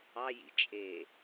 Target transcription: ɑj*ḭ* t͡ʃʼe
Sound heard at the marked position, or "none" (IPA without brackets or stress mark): ḭ